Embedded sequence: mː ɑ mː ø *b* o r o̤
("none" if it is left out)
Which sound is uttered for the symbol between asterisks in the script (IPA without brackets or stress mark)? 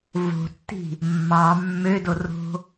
d